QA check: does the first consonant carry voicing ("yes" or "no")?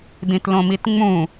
yes